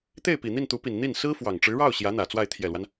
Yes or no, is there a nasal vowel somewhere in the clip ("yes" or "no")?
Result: no